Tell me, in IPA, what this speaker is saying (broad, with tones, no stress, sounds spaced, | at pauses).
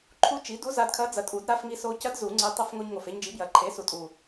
ǃʰ u˧˥ t͡ʃ i˩˥ d u˧˥ z a˧ d kʰ ɐ˧˥ d͡z ɐ˨˩ tʼ u˨˩˦ d ɾ a˧ f ŋ i˧ s o˧ c ɐ˧˥ d z u˨˩˦ ŋ͡ǀ e˧ tˤ ə˧˥ f ŋ o˧ ɲ ŋ o˨˩ f e˧ ɲ d͡ʒ i˩˥ b j ɐ˨˩ ǃʰ e˩˥ s u˨˩ tʼ u˨˩